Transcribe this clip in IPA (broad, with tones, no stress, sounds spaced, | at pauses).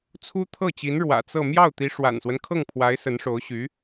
t͡sʰ u˥ t̪ʰ ɤ˥˩ t͡ɕ i˧˥ n ɻ w ä̰˨˩ t͡s ɤ˥˧ m j ɑ˥˩ ʊ̯ t̪ i˧˥ ʂ w a̰˨˩ n s w ə˦ n kʰ ɤ˥˩ ŋ pʰ w a˧˥ ɪ̯ s ə˧˥ n ʂ o˧˥ ʊ̯ ɕ y˧˥